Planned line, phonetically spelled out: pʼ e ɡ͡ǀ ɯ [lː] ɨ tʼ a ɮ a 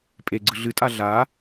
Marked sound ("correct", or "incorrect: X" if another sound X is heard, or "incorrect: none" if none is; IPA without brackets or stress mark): incorrect: ɮ